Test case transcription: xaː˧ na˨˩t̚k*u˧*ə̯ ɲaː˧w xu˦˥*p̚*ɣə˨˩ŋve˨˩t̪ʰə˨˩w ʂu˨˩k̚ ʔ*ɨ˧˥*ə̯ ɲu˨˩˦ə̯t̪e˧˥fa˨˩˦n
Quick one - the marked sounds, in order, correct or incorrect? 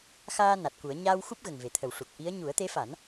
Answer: incorrect: u˨˩˦, correct, incorrect: i˧˥

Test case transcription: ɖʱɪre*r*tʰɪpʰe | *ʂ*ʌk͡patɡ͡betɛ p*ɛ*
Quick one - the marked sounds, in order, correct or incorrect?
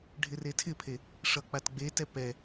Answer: incorrect: none, correct, correct

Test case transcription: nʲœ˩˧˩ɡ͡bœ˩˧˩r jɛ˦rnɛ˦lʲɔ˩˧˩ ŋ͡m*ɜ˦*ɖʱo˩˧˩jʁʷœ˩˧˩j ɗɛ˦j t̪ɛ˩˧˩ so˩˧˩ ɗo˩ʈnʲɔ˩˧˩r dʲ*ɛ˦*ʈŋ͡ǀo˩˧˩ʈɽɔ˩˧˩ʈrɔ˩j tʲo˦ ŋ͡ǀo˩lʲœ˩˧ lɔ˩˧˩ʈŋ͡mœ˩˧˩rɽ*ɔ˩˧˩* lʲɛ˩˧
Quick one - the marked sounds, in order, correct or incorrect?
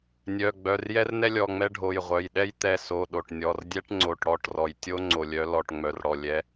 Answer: incorrect: ɛ˦, correct, incorrect: ɔ˩

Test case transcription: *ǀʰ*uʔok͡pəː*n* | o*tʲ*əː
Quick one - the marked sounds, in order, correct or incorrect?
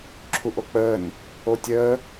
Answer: incorrect: ǁʰ, correct, correct

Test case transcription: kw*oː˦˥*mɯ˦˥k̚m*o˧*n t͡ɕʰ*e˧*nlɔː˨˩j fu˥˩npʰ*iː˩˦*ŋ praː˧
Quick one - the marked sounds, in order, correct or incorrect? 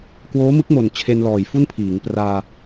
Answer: correct, incorrect: o˨˩, correct, correct

